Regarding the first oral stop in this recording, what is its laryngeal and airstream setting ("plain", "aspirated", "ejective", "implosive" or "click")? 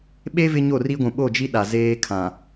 implosive